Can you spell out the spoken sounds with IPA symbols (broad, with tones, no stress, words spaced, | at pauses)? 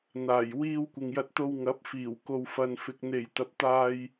n̪aː˨˩j wiː˧w kʷɪ˨ŋjɐ˧t̚t̪o˧w ŋɐ˨˥p̚fiː˨˩w ko˨wfɐ˨nfɪ˨k̚ n̪e˨˩j t̪ɐ˨p̚t̪aː˧j